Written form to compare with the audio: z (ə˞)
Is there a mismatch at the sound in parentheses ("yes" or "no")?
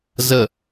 yes